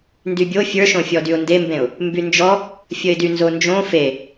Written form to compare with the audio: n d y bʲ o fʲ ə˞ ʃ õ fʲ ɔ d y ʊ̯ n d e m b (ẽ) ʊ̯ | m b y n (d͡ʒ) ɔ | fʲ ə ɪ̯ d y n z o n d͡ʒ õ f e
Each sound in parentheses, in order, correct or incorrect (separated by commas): correct, correct